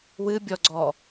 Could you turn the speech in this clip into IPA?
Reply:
w ɨ bʲ ɔ ɡ͡ǀ ɔ

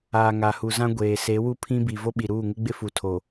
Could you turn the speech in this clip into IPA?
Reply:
aː˨ ŋ a˨ h u˨ z ã˦ ɡʷ eː˨ s e˨˦ w u˦ pʰ ĩ˦ b i˨ v o˦ ɓ i˨ ɾ uː˦˨ ŋ ɪ˦ ɡ͡b ɪ˦ f u˨ tʰ o˨

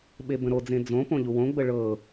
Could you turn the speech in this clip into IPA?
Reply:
ɓ e b ə̃ ɾ o d͡z ẽ d͡z õ p õ ʎ u w õ ɡ͡b ə ɭ ɤ

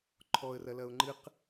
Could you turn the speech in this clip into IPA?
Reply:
ǃʰ ɔ ə̯ r ɐ l ɐ ʊ̯ ŋ͡ǃ ɨ q

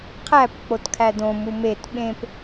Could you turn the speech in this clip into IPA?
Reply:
qʰ æ p k͡p o t kʰ æ d õ m u m e t ɓ ẽ p

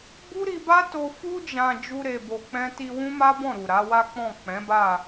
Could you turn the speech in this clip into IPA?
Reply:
b u˦ ɾ i˧ b a˦ t o˧ f u˧ d͡ʒ ã˨ d͡ʒ u˧ ɾ e˨ b o˨ k͡p ɛ̃˧ t i˧ w ũ˦ m a˦ b ɔ̃˦˨ ɾ u˨ ɾ a˨˦ w a˦ k͡p ɔ̃˦˨ k͡p ɛ̃˨˦ b a˦˨

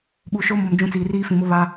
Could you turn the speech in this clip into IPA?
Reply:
ɓ uː˨ ʃ o˦ m o˨ m d͡ʒ ũ˦ t͡s iː˨ r iː˦ f ĩ˨ m ʊ˦ β aː˦

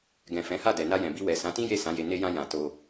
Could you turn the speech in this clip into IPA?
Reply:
ɡ ɛ̃˨ f ɛ̃˨˦ h a˦˨ d ɛ˨ n a˧ j ɛ̃˨ b i˧ w ɛ˨ s ã˨˦ t ĩ˦ j e˦˨ s ã˨˦ j e˧ n e˧ j ã˧ j ã˨ t o˧

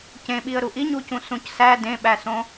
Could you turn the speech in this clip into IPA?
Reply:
c ẽ ɓ i ə̯ ɾ u ʔ i ɲ u c ũ s ũ c s æ d ẽ ɓ æ s õ

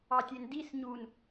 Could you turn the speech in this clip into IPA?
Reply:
ɑ tʲ e n d i s ɲ u n

